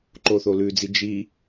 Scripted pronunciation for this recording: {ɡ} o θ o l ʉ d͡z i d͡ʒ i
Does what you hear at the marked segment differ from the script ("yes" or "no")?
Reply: yes